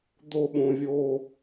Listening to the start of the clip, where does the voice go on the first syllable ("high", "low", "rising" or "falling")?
high